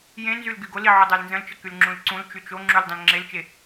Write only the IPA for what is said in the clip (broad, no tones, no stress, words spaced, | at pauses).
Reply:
jẽnzyl ɡyɡoli ʕodˤalnzə̃lt͡ʃə kylŋ͡ǁũlǀũlt͡ʃy t͡ʃoŋ͡ǁul dˤə̃lŋ͡ǁelt͡ʃe